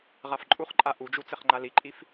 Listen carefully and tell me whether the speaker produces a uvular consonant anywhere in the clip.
yes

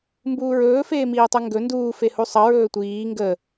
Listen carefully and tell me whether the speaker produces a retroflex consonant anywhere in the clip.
no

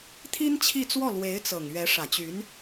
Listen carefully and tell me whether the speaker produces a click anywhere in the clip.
no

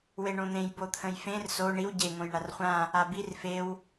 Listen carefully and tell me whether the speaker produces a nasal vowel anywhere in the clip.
yes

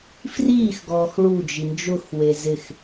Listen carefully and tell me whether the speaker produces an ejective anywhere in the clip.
no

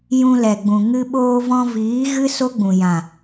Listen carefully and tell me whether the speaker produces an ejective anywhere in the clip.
no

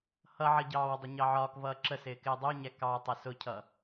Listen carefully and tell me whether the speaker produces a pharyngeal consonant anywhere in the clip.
yes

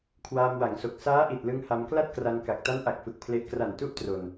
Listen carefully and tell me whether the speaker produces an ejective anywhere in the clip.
no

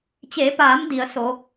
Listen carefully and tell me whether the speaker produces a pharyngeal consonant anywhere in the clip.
no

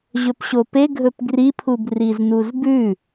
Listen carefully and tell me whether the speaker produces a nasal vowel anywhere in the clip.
no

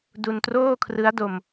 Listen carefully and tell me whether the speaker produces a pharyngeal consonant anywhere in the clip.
no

